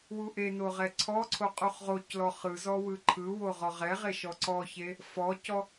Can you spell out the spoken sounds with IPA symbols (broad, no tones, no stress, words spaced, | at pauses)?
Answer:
wuʔeno ʁɛǀʰɔǀʰo qʼuχʁoclɔ χɯzɔ wɯǃʰɯwo ʁɔʁɛʁe ʃɔǀɔçe | fɔcɔ